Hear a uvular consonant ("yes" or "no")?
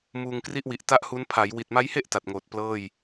no